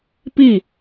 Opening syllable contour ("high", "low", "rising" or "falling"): falling